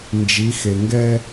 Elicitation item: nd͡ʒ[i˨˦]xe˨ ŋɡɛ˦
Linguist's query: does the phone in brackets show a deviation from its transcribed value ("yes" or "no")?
no